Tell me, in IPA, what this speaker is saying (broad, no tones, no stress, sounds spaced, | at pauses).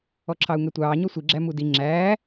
ɔ ǁʰ ɑ u̯ ŋ ɛ tʷ ɑː ɲ ɔ sʷ i ɡ͡ǁ æ m u d i ŋ͡ǁ æː